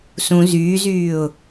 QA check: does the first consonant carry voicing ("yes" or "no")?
no